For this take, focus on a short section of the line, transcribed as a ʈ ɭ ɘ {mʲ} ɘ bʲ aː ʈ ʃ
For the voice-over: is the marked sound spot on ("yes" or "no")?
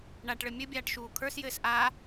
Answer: yes